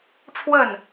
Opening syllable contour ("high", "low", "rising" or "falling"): falling